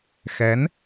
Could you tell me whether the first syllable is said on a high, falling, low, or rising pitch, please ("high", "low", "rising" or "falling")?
rising